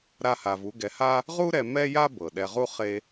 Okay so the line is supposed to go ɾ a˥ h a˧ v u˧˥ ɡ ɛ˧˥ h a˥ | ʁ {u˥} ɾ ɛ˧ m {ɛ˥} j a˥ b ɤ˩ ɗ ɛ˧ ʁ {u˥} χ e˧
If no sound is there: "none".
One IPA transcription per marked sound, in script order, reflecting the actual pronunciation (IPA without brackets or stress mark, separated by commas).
u˥, ɛ˥, u˥